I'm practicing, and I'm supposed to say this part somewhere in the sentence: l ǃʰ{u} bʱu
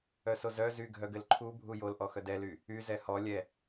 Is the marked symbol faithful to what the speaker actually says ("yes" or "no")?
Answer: yes